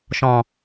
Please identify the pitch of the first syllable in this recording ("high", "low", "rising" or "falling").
low